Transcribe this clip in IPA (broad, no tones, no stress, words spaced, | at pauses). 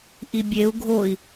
ʔibʲeu̯ ɡʱoi̯